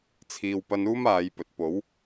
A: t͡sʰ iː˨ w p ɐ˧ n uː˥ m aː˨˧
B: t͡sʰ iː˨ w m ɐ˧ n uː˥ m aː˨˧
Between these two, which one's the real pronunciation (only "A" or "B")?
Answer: A